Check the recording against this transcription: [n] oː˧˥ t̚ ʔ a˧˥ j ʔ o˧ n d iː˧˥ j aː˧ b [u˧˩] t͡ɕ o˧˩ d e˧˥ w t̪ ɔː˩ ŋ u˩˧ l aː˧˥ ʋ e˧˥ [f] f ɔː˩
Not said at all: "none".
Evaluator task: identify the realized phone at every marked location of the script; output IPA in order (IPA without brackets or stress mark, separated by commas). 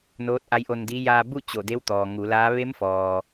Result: n, u˥˨, m